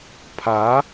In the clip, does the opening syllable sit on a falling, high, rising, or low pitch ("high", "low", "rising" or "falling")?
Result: rising